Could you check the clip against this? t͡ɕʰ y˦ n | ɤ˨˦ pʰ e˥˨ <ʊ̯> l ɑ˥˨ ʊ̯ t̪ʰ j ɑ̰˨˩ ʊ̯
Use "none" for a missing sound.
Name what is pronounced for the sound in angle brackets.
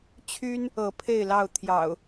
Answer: ɪ̯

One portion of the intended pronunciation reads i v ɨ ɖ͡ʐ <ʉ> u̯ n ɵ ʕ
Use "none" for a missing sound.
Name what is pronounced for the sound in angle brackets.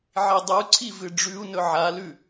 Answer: ʉ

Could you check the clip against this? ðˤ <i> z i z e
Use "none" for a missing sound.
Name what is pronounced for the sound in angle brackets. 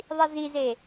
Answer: i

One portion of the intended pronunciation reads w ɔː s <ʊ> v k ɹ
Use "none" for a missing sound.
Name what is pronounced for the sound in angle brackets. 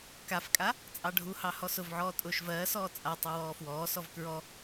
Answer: ɔ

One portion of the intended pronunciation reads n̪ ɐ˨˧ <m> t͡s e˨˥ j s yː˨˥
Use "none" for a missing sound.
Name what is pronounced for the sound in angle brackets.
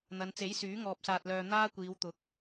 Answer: n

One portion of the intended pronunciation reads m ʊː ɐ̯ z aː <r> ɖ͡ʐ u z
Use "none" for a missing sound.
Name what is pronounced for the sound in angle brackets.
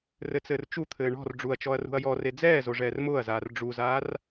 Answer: r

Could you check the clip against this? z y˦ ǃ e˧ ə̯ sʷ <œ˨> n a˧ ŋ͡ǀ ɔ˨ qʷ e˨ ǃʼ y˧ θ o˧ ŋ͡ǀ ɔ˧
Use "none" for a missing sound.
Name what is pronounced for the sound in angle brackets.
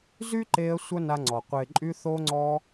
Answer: œ˦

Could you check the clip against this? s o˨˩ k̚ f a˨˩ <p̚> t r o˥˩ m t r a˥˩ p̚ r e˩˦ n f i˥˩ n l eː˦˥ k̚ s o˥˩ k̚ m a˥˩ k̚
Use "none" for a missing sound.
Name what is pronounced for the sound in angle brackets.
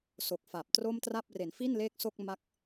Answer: p̚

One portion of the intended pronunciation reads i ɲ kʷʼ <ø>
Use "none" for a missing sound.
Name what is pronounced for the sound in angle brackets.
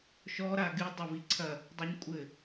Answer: ɘ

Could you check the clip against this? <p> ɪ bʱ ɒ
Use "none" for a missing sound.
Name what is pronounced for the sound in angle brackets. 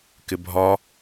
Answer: k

